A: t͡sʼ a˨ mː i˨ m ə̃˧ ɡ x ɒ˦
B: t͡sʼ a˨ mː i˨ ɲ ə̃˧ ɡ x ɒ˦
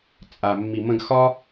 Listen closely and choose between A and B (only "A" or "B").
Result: A